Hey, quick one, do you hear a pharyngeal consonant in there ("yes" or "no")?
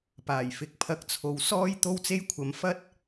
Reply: no